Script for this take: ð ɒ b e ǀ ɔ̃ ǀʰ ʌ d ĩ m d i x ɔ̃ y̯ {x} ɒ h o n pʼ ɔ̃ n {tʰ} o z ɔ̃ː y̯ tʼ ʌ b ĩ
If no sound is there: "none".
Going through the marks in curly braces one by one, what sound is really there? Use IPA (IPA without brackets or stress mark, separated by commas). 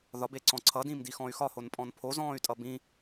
x, pʰ